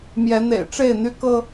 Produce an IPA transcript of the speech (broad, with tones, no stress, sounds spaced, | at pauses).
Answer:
m j ɛ˨˦ n̪ ḛ˨˩ ɪ̯ ʈ͡ʂ e˥˨ ɪ̯ n̪ y˦ k ɤ˦